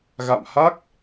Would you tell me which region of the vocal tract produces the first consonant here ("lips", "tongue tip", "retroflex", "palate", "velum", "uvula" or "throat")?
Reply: velum